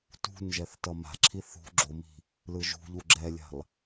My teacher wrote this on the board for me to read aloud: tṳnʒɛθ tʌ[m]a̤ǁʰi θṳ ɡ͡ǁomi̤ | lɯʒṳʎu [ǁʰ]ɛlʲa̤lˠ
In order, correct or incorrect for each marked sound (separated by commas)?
correct, incorrect